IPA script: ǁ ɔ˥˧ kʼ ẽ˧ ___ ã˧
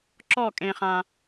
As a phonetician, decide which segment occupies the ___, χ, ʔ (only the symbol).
χ